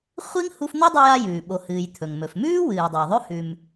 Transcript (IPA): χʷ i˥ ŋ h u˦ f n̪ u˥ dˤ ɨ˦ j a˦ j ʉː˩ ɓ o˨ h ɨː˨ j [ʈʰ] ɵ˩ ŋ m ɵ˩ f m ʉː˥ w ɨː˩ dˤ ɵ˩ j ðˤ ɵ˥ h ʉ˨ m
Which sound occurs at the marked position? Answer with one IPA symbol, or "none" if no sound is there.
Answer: t̪ʰ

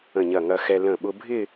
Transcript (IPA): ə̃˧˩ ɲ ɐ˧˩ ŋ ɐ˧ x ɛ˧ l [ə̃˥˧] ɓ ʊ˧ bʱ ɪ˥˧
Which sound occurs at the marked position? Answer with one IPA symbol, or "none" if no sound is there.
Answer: ə̃˧˩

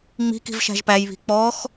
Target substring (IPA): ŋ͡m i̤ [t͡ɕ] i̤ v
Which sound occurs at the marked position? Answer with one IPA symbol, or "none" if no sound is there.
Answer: k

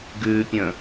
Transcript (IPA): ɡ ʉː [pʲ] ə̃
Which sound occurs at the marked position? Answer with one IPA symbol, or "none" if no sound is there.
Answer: pʲ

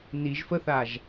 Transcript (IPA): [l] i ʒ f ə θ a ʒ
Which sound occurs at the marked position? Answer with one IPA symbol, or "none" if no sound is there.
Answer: n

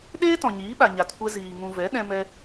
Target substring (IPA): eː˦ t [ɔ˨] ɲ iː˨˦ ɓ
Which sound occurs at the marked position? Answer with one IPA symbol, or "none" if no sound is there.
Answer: ɔ̃˨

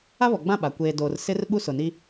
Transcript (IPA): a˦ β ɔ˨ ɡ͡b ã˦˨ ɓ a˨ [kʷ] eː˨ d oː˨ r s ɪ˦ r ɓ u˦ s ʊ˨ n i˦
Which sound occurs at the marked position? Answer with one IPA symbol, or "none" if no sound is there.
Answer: kʷ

